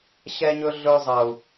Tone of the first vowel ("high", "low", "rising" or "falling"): high